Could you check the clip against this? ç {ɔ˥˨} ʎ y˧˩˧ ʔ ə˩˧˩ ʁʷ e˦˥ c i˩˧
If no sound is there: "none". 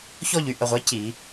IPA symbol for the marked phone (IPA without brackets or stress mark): ɔ˥˨